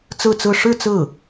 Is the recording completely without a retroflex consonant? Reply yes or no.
no